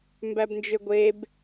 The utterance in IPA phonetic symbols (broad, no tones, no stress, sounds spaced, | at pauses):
m b æ b n d͡ʒ ø ɡʷ e b